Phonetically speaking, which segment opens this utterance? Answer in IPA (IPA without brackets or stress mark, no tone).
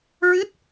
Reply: ɹ